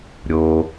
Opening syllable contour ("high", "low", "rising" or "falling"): low